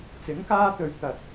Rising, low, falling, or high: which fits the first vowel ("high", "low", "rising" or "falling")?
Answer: rising